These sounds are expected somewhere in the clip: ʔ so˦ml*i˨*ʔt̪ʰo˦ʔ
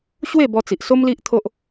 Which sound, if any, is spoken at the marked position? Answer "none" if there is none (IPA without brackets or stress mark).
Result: i˦